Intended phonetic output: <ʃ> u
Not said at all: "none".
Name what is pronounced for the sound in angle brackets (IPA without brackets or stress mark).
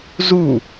z